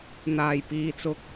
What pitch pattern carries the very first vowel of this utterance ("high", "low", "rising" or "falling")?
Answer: low